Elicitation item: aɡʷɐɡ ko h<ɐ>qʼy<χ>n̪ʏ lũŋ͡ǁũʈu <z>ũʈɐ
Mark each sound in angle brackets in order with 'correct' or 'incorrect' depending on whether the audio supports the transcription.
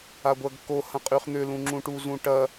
incorrect: ɐ̃, correct, correct

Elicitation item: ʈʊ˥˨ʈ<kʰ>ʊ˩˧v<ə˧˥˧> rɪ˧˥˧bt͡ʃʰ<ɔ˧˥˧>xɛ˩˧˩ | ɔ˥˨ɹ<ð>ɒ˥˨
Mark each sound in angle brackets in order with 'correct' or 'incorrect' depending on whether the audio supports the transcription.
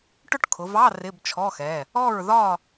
correct, incorrect: ɑ˧˥˧, correct, correct

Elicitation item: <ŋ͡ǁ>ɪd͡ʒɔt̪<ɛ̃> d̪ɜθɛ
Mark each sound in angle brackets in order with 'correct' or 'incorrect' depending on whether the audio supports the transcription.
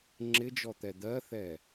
correct, incorrect: ɛ

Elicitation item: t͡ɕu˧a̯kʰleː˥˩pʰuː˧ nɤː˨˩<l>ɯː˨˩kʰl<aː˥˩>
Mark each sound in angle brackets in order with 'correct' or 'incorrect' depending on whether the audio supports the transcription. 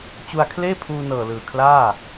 correct, correct

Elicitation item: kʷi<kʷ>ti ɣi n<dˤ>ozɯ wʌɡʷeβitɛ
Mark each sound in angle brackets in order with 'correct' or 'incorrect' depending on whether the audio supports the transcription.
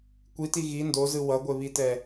incorrect: none, incorrect: d

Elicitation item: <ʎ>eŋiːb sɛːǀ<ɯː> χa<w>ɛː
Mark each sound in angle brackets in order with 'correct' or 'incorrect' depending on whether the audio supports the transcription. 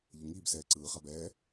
correct, correct, incorrect: b

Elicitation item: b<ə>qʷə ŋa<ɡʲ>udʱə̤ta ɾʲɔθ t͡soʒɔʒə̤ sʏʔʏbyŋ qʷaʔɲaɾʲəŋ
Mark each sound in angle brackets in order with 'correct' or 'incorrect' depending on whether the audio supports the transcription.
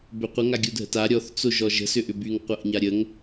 incorrect: ø, correct

